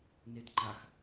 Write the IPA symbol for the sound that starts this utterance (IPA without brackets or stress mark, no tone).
n